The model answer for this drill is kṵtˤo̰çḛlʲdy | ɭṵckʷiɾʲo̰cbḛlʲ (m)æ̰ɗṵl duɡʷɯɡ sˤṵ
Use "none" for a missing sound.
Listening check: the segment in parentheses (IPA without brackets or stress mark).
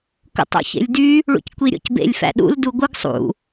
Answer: f